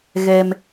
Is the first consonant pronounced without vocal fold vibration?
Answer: no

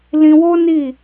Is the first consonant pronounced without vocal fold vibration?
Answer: no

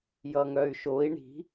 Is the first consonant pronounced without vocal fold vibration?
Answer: no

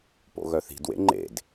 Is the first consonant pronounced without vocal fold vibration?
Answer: yes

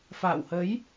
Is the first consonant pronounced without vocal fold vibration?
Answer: yes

